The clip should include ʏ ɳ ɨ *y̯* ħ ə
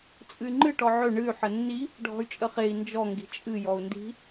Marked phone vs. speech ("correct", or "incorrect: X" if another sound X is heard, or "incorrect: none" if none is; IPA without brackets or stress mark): correct